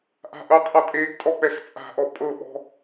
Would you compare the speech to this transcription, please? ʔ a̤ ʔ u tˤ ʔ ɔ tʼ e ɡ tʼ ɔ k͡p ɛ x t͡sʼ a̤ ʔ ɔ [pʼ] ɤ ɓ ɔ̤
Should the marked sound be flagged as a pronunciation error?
no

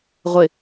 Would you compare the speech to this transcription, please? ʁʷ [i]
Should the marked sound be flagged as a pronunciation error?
yes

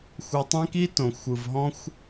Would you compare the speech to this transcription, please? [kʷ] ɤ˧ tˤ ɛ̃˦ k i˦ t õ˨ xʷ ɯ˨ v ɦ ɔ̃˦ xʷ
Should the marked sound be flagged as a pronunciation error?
yes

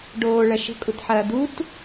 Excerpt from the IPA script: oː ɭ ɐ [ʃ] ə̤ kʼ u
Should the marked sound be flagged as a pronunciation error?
no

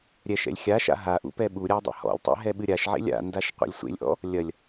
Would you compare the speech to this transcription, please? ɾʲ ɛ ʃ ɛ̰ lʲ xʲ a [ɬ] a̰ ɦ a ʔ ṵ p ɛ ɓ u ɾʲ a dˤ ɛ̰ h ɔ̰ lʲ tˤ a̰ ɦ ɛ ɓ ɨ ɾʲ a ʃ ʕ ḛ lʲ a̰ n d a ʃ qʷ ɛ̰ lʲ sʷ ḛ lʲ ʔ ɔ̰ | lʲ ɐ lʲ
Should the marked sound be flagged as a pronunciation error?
yes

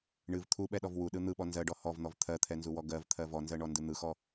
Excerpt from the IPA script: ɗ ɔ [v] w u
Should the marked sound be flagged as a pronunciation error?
no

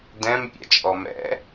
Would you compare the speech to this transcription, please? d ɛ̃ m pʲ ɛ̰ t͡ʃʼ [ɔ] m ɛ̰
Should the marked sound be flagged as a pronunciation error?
no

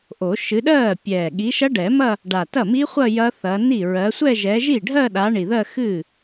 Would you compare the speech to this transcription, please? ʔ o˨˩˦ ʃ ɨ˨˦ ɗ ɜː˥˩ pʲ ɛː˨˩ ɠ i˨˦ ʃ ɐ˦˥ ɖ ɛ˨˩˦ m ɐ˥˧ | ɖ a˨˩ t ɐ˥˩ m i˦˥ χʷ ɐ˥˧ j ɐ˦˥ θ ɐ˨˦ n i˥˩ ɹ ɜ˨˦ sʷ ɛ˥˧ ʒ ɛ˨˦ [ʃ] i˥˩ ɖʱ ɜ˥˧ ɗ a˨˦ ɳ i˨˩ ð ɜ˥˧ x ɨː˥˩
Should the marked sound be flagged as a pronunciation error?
yes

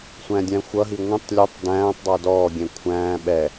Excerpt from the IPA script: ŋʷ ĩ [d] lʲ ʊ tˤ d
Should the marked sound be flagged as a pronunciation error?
yes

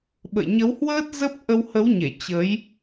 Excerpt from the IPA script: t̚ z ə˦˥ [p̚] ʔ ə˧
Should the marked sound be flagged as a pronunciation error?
no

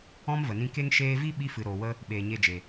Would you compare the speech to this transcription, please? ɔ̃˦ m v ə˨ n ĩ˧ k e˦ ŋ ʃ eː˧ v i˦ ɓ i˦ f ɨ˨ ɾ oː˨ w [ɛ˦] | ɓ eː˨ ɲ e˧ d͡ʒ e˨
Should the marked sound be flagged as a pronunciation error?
yes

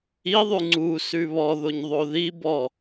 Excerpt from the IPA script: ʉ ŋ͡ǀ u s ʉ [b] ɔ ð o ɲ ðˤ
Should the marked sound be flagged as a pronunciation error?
yes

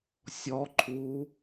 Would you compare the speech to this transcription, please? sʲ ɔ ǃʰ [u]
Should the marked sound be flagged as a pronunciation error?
no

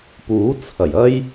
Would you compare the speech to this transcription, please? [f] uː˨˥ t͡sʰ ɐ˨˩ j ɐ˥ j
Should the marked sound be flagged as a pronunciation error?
yes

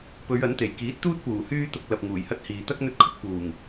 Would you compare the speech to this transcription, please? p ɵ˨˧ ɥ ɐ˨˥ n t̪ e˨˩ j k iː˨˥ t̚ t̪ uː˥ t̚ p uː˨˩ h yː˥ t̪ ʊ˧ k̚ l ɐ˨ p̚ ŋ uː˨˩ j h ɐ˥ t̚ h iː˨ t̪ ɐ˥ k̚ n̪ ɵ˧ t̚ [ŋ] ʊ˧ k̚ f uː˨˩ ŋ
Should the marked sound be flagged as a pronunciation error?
yes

